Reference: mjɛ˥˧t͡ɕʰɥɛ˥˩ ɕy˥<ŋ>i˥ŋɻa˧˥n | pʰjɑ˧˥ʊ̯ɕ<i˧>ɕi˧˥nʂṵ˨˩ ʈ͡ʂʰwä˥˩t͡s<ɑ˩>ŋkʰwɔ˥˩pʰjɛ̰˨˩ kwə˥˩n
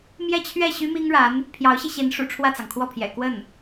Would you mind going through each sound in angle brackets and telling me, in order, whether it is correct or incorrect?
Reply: incorrect, correct, correct

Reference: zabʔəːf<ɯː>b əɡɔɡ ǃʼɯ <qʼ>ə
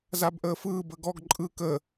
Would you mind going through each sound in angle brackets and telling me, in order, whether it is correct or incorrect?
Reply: correct, incorrect

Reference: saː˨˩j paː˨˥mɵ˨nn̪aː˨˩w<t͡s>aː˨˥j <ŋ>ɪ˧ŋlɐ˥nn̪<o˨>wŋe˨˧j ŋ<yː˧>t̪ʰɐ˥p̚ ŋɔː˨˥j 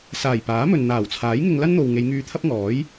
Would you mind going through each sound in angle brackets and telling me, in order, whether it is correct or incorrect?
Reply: incorrect, correct, correct, correct

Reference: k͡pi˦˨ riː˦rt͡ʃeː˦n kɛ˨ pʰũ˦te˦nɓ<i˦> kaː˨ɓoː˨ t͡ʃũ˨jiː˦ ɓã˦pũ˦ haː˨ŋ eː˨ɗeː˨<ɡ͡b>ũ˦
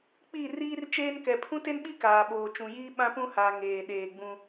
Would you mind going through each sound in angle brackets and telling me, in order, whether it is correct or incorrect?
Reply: correct, correct

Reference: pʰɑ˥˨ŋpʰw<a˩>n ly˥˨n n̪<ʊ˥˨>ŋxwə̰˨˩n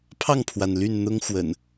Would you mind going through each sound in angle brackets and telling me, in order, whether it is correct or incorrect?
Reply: correct, incorrect

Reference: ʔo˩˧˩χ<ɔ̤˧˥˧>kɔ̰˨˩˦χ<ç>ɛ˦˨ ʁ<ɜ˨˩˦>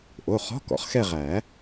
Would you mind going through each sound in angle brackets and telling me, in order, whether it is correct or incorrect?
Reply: correct, incorrect, incorrect

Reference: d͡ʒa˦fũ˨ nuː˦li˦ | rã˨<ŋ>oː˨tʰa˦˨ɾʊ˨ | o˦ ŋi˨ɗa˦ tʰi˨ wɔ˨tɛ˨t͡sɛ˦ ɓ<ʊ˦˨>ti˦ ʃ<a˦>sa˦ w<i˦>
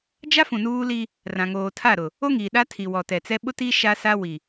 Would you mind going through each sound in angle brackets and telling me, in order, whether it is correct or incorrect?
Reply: correct, incorrect, correct, incorrect

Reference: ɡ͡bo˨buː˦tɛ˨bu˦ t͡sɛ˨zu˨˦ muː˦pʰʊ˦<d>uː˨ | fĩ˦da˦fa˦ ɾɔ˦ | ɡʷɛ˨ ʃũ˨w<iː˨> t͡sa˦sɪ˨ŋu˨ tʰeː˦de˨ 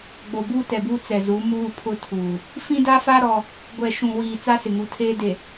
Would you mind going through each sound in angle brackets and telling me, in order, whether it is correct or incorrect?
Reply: incorrect, correct

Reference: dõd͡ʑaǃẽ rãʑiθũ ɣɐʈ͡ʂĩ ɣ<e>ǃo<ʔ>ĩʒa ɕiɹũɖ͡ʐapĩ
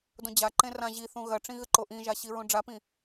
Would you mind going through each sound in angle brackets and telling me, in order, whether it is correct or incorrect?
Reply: incorrect, correct

